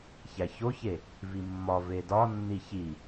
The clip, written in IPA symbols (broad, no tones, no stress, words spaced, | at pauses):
çæçoçe | vimːɒ vedɒ nːiçi